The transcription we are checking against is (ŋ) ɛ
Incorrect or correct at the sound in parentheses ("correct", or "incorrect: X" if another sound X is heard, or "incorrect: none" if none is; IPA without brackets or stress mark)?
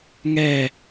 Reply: correct